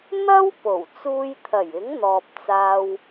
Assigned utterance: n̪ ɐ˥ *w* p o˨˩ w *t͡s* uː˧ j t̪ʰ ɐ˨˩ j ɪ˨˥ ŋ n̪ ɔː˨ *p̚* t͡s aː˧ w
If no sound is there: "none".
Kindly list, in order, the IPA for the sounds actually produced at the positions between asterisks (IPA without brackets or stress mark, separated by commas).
w, t͡s, p̚